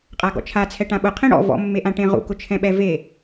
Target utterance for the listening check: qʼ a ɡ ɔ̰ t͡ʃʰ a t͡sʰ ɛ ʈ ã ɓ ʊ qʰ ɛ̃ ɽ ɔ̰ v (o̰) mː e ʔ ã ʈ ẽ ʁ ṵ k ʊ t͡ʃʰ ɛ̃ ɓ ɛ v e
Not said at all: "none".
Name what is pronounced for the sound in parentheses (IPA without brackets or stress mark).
ɔ̰